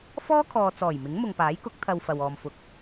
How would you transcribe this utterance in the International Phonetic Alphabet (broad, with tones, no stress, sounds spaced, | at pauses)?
f ɔː˥ kʰ ɔː˨ t͡s ɔː˨˩ j m ɪ˨˥ ŋ m ʊ˨ ŋ p aː˨˥ j k ʊ˨˥ k̚ t̪ʰ ɐ˧ w f ɐ˨ w ɔː˨ m f ʊ˨ k̚